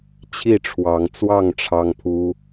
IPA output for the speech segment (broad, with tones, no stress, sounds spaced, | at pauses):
t͡ɕʰ i˥˨ ʈ͡ʂʰ w ɑ˨˦ ŋ t͡s w ɑ˥˨ ŋ ʈ͡ʂʰ ɑ˦ ŋ pʰ u˦